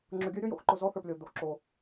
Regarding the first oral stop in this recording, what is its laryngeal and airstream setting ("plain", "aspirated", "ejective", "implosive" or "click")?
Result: click